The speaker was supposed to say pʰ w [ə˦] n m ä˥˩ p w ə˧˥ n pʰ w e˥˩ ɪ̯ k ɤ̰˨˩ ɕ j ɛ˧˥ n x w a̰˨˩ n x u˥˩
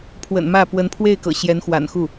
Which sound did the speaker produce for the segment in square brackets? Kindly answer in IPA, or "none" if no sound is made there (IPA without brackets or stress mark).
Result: ə̰˨˩